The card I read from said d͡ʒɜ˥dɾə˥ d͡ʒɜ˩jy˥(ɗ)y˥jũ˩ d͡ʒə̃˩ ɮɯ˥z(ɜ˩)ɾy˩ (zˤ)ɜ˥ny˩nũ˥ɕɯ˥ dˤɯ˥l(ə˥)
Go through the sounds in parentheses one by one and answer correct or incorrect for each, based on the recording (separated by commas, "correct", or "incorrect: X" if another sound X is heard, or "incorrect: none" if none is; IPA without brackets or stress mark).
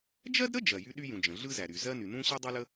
correct, incorrect: æ˩, incorrect: z, correct